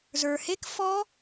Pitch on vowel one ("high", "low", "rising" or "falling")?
low